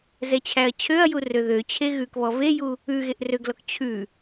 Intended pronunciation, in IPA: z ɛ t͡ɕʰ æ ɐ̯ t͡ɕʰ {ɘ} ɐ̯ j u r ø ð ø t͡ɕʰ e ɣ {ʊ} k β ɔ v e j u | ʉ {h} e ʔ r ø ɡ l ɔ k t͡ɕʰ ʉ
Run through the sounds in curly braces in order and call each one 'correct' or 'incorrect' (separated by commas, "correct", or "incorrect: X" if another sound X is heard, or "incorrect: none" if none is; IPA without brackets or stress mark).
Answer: incorrect: ø, incorrect: ʉ, incorrect: ɣ